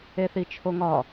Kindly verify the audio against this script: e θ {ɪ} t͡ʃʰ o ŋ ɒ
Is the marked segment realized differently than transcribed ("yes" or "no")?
yes